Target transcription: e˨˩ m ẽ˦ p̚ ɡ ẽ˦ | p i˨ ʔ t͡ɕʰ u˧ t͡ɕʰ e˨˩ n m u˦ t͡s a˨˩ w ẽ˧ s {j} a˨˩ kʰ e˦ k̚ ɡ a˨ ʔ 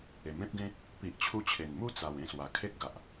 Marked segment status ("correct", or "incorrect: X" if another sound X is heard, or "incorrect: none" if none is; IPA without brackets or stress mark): incorrect: w